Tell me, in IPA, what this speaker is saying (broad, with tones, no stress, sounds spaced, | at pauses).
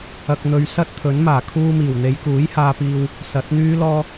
ɐ˧ k̚ n̪ ɵ˧ ɥ s ɐ˥ t̚ t̪ʰ ɵ˨˥ n m aː˨˩ kʰ uː˧ m iː˨˩ w n̪ e˨˧ j k uː˨˥ j h aː˧ p iː˧ w | s ɐ˨˥ t̚ n̪ yː˥ l ɔː˥